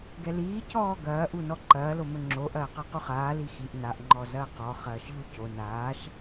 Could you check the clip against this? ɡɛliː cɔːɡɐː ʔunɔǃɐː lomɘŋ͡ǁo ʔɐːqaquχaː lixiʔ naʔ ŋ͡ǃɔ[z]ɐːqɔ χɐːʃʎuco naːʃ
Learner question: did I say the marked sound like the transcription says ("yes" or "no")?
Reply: yes